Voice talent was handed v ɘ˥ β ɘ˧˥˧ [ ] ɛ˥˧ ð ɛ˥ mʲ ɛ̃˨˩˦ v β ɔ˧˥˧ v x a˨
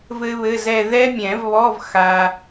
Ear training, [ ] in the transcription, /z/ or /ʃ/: z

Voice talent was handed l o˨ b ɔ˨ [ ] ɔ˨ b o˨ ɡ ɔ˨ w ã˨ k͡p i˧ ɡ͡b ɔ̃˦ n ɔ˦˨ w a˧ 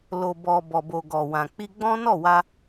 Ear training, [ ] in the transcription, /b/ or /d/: b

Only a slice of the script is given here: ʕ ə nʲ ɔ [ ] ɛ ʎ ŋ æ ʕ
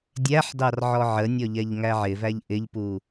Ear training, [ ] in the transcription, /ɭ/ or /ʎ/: ʎ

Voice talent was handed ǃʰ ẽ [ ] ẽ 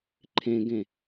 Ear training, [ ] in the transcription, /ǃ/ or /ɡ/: ɡ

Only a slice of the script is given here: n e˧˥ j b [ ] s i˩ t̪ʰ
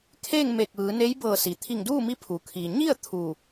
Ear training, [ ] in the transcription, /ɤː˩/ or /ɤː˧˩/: ɤː˧˩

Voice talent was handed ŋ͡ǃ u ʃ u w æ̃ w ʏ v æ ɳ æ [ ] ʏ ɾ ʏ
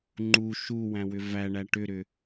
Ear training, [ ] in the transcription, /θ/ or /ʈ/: ʈ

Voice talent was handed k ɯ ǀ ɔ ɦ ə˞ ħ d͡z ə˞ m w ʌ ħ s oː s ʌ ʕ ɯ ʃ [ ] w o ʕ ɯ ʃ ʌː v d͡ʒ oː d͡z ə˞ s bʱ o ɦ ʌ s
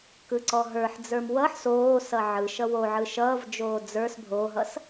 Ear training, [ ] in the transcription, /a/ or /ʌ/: ʌ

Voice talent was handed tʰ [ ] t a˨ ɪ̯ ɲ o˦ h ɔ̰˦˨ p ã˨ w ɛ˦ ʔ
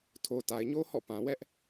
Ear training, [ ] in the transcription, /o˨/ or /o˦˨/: o˨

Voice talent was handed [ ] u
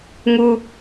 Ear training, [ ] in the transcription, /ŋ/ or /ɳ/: ŋ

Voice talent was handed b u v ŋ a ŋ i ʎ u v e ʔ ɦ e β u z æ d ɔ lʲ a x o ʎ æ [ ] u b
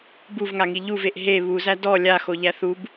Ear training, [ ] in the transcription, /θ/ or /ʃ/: θ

